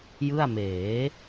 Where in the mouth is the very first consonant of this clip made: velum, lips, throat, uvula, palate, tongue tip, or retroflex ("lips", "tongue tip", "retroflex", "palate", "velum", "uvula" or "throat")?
palate